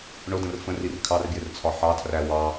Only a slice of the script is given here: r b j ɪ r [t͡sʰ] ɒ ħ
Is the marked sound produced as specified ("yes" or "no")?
yes